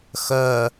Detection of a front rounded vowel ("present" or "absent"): present